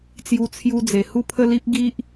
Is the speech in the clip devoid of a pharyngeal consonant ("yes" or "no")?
yes